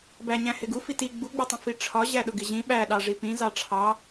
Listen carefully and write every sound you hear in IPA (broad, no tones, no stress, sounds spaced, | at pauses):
b æ ɲ æ̃ h ɪ ɡ u f i t i ɡ͡b u ɡ͡b ʊ tˤ ĩ f i ʈ͡ʂʰ ɒ ʑ æ ɗ ʊ ɡ ɪ ʑ ĩ ɓ æ ɗ ɑ ʐ i p ĩ z ɑ ʈ͡ʂʰ ɑ